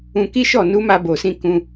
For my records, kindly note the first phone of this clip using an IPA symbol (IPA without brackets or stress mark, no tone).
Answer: ũ